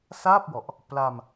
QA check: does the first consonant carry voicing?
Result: no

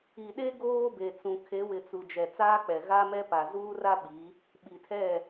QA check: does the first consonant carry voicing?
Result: yes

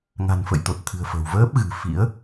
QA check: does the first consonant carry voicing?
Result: yes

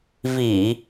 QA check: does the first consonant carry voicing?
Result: yes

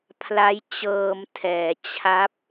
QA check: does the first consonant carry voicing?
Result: no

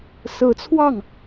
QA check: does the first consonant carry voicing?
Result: no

